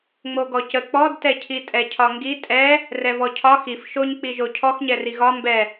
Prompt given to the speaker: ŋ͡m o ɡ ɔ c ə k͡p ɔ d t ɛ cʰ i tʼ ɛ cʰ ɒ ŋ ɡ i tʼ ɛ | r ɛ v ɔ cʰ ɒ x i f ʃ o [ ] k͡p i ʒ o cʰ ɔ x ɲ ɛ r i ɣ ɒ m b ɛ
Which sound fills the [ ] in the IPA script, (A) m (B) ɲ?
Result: B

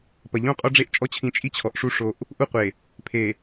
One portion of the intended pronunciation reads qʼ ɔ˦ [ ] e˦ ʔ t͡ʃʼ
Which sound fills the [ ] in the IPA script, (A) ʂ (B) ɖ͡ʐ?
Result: B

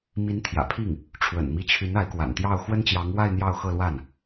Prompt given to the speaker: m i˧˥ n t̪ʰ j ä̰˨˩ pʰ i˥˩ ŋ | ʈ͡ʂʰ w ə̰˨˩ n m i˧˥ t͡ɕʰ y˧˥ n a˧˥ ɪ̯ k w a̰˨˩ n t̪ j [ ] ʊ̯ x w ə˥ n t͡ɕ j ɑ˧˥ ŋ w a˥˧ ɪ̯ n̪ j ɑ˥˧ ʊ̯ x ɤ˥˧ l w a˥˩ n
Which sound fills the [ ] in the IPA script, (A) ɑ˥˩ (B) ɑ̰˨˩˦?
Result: A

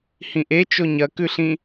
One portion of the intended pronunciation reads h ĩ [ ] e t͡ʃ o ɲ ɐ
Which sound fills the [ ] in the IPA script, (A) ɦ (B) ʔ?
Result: B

